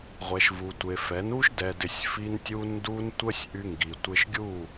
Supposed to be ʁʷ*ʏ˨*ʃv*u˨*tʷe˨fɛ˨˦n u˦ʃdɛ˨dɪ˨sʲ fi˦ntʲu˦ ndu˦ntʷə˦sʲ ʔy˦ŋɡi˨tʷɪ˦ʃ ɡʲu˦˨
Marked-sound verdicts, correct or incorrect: incorrect, correct

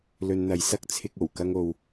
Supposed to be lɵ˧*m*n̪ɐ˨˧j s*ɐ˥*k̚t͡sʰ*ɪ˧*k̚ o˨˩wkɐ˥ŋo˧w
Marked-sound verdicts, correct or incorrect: incorrect, correct, correct

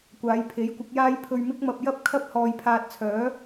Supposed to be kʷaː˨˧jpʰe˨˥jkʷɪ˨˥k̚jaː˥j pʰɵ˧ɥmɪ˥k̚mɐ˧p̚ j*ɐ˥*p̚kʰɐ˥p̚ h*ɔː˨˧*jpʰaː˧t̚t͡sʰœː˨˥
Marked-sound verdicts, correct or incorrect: correct, incorrect

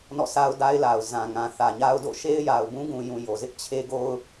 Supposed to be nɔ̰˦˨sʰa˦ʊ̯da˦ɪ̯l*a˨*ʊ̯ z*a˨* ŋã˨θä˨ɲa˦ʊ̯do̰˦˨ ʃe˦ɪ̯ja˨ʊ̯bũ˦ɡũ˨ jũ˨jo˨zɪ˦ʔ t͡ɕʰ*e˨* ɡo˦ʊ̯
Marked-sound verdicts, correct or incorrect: correct, incorrect, incorrect

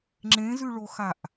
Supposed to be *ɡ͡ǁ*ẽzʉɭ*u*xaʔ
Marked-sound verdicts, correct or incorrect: incorrect, incorrect

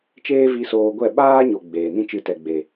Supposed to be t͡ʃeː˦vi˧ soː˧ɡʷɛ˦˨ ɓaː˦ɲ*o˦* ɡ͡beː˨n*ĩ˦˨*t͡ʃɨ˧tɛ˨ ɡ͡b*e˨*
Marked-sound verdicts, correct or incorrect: incorrect, incorrect, correct

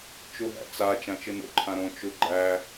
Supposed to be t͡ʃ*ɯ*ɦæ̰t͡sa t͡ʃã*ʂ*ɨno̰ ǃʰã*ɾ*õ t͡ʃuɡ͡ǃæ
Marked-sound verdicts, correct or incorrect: incorrect, incorrect, correct

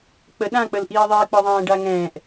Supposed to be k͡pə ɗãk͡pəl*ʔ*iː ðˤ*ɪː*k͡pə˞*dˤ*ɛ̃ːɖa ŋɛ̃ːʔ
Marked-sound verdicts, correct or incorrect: correct, correct, incorrect

